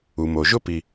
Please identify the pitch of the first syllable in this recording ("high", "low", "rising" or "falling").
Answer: low